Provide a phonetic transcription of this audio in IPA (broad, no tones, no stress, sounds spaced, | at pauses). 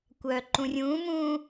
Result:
kʷ œː ǃ ũ rʲ ũː m ũː